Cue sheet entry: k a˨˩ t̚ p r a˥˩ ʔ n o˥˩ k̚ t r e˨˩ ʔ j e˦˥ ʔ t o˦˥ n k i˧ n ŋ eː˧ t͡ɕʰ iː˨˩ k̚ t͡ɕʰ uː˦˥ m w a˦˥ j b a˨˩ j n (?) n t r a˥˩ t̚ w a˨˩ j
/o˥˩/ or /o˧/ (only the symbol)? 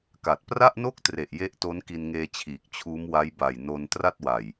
o˧